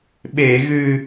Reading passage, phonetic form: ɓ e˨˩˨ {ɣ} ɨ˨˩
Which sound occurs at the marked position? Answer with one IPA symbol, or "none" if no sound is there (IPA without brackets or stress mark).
ɣ